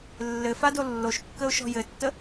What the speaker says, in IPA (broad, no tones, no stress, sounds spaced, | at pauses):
lː ɘ f a d o lː o ʃ kː ə ʊ̯ ʃ ɔ̤ j ɘ tː ə